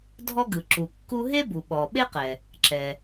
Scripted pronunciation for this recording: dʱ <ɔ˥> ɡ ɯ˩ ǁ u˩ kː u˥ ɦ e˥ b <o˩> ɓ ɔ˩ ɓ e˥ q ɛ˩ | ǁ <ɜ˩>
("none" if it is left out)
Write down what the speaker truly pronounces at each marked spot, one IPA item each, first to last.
ɔ˥, u˩, ɛ˩

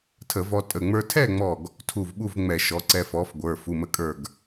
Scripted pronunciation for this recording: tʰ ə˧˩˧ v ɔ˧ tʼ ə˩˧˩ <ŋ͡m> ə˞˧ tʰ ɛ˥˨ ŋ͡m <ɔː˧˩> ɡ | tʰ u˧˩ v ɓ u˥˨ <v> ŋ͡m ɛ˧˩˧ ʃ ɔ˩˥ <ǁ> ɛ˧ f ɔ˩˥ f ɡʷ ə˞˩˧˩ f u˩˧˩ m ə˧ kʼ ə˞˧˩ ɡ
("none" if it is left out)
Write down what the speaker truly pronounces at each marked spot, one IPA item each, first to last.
ŋ͡m, ɔ˧˩, v, ǀ

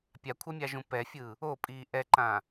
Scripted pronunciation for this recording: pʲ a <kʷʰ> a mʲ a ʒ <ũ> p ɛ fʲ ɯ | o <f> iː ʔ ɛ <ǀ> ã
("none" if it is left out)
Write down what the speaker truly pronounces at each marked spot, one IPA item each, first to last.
kʷʰ, ũ, pʼ, ǃ

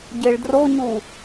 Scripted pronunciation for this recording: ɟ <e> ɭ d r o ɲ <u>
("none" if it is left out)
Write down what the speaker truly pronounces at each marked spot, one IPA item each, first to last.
e, u

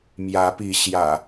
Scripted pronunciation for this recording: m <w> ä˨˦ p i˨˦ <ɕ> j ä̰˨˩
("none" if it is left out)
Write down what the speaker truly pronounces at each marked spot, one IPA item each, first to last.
j, ɕ

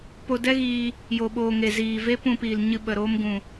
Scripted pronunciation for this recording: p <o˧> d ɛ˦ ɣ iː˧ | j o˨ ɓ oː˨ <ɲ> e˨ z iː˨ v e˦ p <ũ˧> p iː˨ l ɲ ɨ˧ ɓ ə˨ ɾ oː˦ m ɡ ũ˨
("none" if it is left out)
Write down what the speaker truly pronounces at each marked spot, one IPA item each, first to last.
o˧, ŋ, ũ˧

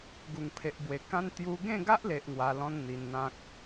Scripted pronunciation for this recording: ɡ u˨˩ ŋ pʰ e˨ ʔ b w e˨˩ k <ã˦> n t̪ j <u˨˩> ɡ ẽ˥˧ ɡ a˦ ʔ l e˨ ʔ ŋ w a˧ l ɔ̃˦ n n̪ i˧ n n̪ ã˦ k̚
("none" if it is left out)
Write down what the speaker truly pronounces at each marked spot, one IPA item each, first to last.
ã˦, u˧

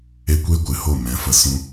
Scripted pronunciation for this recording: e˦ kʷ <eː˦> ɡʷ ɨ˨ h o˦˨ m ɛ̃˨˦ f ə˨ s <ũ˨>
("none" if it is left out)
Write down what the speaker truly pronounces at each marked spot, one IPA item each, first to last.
eː˦, ũ˧

